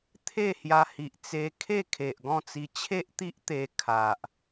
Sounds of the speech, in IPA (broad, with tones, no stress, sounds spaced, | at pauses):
t̪ʰ e˥˧ h j a˧ h i˨ ʔ t͡s e˧ kʰ e˥˧ kʰ e˨ ʔ ɡ ɔ̃˥˧ t͡s i˧ t͡ɕʰ e˦ ʔ t̪ i˦ ʔ t̪ e˧ kʰ a˨ ʔ